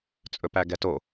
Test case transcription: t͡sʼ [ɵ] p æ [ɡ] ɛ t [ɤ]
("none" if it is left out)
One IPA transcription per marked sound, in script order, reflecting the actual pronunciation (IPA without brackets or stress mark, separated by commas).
ɵ, ɡ, o